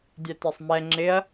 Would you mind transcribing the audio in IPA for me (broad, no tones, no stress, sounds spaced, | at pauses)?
dʲ ɛ t ɛ sˤ m ɛ ŋ͡ǁ ɪ ɐ̯